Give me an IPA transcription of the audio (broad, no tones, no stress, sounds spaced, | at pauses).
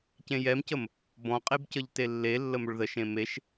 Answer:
c ẽ j ɛ m c ə m | b ɔ̃ qʼ e b c ə ʎ t e lː e lː ə m ɵ ɭ ð ə ʃ ẽ m e ʃ